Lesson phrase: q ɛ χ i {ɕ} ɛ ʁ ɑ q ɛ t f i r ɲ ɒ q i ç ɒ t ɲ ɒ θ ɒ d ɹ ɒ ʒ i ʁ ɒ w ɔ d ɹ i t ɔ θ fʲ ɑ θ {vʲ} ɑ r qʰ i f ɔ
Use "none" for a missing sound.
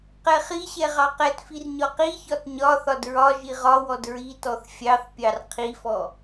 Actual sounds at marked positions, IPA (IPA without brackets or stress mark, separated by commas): ɕ, pʲ